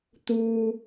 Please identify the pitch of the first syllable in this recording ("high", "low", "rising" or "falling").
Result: high